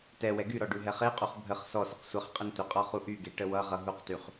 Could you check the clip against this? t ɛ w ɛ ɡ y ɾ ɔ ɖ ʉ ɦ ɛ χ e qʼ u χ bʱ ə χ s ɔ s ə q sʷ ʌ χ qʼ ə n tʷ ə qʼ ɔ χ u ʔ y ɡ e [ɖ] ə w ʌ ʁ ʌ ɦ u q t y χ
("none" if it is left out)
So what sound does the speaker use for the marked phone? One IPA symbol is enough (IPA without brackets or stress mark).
ʈ